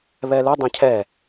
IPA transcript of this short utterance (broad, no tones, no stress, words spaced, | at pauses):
βɛlu dˤẽcʰɛ